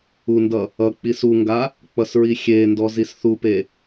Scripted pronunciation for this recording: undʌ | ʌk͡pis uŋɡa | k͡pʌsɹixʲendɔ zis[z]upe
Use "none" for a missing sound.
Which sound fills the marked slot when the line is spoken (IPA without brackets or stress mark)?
θ